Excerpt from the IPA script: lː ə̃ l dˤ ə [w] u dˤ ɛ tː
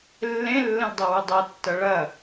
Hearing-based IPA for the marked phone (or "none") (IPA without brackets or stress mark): w